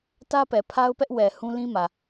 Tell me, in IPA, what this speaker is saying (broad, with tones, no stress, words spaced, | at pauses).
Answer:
tä˦pɛ˨pʰa˦ʊ̯pɛ˦ʔ wɛ˨ hũ˦lĩ˦mä˨